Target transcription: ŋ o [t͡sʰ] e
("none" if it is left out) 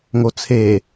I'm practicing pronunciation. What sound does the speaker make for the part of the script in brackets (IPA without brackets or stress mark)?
t͡sʰ